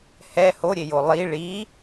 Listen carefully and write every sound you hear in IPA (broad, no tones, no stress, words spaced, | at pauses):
hɛ hoɾʲejo lˠi ɭi